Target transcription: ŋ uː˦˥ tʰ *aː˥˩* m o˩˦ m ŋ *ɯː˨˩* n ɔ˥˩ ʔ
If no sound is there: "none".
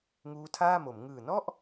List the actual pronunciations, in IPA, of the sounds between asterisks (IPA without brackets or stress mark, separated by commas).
aː˥˩, ɯː˨˩